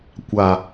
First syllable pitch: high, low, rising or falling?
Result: low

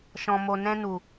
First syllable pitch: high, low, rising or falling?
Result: low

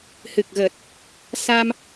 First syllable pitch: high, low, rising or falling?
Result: low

